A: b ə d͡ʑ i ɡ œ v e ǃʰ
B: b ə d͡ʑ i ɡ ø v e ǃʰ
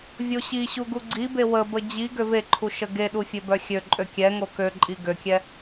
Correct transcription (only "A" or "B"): B